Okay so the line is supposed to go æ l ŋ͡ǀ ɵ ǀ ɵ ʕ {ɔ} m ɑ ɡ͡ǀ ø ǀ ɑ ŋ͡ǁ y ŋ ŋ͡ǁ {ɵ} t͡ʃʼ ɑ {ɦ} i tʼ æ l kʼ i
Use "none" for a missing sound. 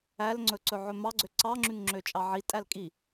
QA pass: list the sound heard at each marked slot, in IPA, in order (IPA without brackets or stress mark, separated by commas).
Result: ɵ, ø, ʕ